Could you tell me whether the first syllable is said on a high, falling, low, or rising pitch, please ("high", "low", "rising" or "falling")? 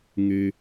low